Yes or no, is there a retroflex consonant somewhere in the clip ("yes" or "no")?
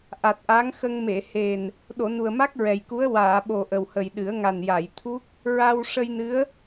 yes